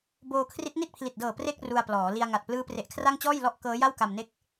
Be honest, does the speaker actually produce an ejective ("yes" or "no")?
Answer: no